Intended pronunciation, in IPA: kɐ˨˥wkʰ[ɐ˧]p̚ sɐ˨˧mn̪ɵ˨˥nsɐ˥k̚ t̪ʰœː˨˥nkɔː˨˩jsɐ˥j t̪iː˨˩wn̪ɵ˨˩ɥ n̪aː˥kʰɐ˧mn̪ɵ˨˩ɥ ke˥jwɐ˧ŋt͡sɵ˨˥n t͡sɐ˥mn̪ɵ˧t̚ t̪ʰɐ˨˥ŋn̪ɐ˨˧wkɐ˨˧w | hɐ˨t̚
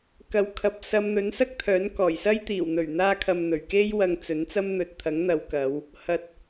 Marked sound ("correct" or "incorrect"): incorrect